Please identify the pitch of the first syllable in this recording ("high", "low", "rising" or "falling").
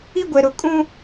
high